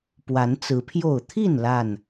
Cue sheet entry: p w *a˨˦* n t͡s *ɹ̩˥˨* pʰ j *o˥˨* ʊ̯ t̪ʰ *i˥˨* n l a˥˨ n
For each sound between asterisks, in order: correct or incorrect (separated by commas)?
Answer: correct, incorrect, correct, correct